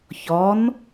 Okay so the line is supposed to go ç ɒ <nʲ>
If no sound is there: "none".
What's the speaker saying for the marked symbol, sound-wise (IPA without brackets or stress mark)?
n